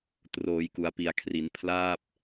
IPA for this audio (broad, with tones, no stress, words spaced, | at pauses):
troː˩˦jku˩˦a̯pi˩˦a̯kʰri˩˦n pʰlaː˥˩p̚